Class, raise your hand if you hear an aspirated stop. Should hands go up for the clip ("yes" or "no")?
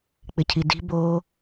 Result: yes